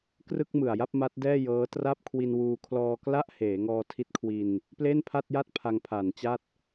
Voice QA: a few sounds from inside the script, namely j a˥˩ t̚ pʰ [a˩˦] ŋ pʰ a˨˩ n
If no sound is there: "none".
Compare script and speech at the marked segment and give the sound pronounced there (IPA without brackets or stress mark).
a˧